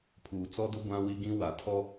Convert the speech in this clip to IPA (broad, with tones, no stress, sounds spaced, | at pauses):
pʰ uː˨ t͡s ɔ˦ d ʊ˦ ɡʷ ã˦ w i˦ ɡ ĩ˦ w a˨ tʰ ɔ˦